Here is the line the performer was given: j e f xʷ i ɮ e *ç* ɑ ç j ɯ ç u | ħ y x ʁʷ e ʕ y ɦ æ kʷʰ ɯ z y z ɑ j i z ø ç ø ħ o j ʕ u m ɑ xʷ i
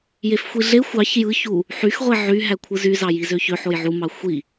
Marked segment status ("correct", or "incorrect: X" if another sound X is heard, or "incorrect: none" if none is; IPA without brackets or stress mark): incorrect: xʷ